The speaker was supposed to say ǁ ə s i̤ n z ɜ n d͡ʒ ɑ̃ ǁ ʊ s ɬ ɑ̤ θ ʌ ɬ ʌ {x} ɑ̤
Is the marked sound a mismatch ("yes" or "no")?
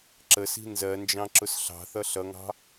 yes